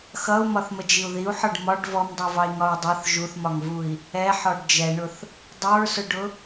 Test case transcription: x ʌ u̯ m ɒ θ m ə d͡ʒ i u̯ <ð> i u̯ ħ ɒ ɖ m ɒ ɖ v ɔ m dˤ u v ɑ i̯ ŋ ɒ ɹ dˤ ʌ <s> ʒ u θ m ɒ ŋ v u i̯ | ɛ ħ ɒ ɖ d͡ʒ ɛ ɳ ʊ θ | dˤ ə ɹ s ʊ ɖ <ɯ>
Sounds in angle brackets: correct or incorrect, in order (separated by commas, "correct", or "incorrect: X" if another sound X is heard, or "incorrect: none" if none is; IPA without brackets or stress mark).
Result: correct, incorrect: θ, incorrect: ʊ